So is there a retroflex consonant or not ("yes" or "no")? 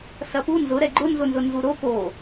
no